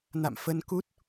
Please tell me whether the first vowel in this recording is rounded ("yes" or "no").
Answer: no